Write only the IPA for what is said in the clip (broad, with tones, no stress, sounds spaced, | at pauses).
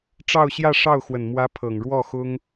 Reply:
ʈ͡ʂ ɑ˥˧ ʊ̯ ɕ j ä˥˧ ʂ ɑ˥˩ ʊ̯ x w ə˨˩ n m w ä˧˥ pʰ ɤ˨˩ ŋ ɻ w ɔ˥˩ x ʊ˥ ŋ